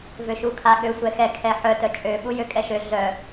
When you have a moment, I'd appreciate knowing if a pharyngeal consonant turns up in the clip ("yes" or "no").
yes